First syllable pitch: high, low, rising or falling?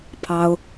high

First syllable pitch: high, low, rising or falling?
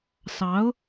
rising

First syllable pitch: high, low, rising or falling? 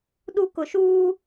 high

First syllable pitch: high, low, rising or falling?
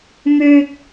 low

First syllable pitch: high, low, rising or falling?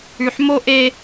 low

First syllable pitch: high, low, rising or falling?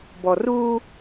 low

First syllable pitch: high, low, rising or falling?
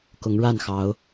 rising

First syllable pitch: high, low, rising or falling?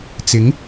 rising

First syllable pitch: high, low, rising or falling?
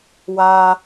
high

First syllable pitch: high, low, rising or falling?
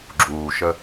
low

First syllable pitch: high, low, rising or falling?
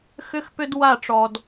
high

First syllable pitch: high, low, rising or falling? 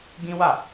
high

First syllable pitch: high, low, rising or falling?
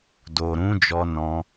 low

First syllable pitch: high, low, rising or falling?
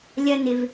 high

